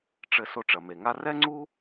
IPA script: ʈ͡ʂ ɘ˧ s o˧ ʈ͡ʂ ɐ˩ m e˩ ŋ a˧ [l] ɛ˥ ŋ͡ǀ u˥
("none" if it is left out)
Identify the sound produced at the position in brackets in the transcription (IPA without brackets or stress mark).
r